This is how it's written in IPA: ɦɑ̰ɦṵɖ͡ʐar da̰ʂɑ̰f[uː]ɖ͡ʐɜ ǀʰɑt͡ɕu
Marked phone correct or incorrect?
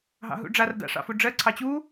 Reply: incorrect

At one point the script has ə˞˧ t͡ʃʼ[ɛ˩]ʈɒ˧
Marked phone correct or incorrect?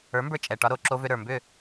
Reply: correct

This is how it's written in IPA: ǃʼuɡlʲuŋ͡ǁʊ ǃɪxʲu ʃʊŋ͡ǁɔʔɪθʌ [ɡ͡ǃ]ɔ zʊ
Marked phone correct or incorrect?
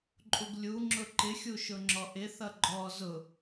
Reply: correct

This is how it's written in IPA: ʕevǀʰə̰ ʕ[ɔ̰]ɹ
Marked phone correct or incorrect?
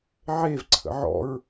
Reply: correct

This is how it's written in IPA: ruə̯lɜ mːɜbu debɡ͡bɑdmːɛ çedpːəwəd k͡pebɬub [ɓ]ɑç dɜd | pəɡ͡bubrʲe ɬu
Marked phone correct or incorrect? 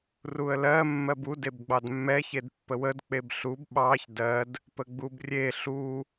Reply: correct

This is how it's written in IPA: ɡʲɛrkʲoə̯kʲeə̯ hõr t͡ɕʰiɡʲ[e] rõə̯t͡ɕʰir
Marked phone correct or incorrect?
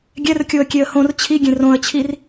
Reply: incorrect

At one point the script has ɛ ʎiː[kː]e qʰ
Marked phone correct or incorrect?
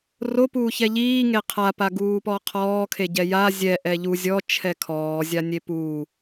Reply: incorrect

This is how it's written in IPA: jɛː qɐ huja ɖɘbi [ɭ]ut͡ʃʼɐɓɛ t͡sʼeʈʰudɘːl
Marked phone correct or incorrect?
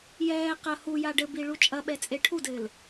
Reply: correct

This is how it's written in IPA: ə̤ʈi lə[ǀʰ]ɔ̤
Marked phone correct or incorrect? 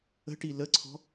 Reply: correct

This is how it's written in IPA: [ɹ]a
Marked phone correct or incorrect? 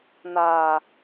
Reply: incorrect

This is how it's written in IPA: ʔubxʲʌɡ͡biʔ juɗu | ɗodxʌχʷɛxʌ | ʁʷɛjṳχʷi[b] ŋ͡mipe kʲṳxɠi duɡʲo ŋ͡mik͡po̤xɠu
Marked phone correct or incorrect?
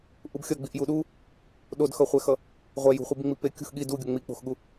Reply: correct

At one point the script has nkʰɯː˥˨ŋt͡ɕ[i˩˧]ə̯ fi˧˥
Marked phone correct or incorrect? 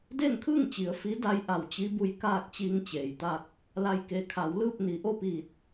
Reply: correct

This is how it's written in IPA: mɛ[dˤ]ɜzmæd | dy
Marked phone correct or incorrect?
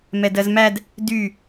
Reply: incorrect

